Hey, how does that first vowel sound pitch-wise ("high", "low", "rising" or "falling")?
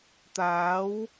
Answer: rising